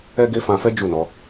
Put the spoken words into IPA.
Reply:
ɛ˦ ɡ e˦ f ã˧ f ɛ˦ d͡ʒ u˦˨ n ɔ˨˦

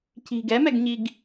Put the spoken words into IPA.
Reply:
c i̤ ɡ ɛ m ɛ ɡ ɲ i ɡ

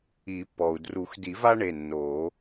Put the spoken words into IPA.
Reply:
i˨˩˦ pː ɔ˩ u̯ d r u˨˩˦ x d i˨˩˦ v a˦ ɳ e˩˧˩ nː oː˨˩˦

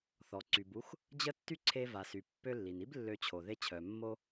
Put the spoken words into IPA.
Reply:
θ ɔ˩ ǀ y˩ b u˧ x | d͡ʑ ə˥ tː y˥ ǀʰ e˧ v a˩ s y˩ pː ø˧ lː i˩ n i˥ b lː ø˧ t͡ɕʰ o˩ ð e˧ t͡ɕʰ œ˩ mː o˧

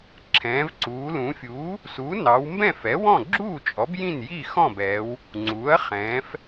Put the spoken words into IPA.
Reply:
ǁʰ ɛ̃ː˩˧ v ǀ uː˩˧ l ũ˩˧ fʲ uː˩˥ | s u˩˥ n ɑ˩˧ w m b ɛ̃˥˩ f ɛ˩˥ w ɔ̃˥˩ ɡ͡ǁ uː˥˩ t͡ʃʼ ɔ˩˥ b j ĩ˥˩ n j i˥˩ x ɔ̃˥˩ b ɛː˩˧ w | ŋ͡ǀ uː˩˥ ɐ̯ χ ɛ̃ː˩˧ f

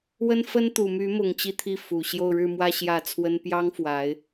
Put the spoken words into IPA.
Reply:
w ə˥ n f ə˥ n t̪ u˨˩ m y˧˥ m ʊ˨˩ ŋ t͡ɕ i˥˧ t̪ʰ i˥˩ f u˨˩ ɕ j o˥˧ ʊ̯ ɻ ɻ̩˥˧ m w ä˥˧ ɕ j ä˥˩ t͡sʰ w ə˥ n p j ɑ˥ ŋ f w a˧˥ ɪ̯

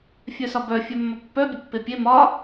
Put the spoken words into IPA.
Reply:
fʲ œ s ɒ b œ fʲ œ mː ɒ pː œ bʲ ə pː e pʲ e m ɒ

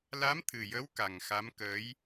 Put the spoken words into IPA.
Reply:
l a˧˥ m t̪ʰ ɨ˨˩ j ə˧˥ w k a˨˩ ŋ x a˧˥ m k əː˧˥ j

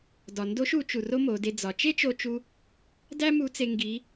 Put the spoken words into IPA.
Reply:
d ɒ˩ n d o˧˥ ʃ u˩˧ t͡ʃ u˩ r o˥ m o˩˧ d e˧ d͡z ɒ˩˧ t͡ʃ e˥ t͡ʃ o˧ t͡ʃ u˧ | d æ˥ m u˧˥ t͡s e˧ ŋ ɡ i˧˥

